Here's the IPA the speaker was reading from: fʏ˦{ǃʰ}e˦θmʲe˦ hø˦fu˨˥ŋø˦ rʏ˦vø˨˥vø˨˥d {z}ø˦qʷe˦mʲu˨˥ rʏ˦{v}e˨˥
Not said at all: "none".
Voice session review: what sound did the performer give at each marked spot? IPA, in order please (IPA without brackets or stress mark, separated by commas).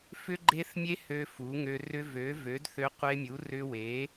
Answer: ɡ͡ǃ, θ, w